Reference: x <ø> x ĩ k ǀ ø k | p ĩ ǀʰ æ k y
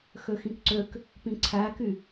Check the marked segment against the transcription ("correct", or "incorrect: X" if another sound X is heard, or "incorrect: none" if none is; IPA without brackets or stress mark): correct